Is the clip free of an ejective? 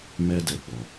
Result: yes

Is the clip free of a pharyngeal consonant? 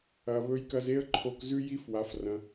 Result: yes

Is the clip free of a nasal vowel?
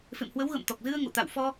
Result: yes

